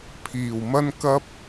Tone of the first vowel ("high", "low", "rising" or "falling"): low